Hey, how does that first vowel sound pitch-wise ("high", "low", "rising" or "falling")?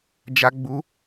high